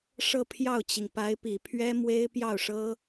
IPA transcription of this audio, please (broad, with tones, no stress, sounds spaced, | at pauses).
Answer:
ʂ ɤ˥˧ pʰ j ɑ˥˩ ʊ̯ t͡ɕ i˩ ŋ p a˧˥ ɪ̯ p i˨˩ pʰ ɥ ɛ˥ m w e˥ ɪ̯ p j ɑ˥˩ ʊ̯ ʂ ɤ˥